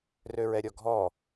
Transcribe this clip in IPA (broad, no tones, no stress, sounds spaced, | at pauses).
r ø ɹ ɛ ɾʲ ɔ ɡʱ ɔ